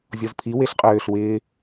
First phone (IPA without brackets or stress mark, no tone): zʲ